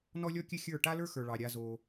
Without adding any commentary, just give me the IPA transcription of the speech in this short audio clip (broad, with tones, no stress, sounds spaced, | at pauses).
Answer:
n ɔ˦ lʲ ɔ˦ kʲ ɘ˦ xʲ ə˞˦˨ ʈ a˦ l ə˞˦ x ə˞˨ ɭ ɑ˨ ɾʲ a˧ z o˧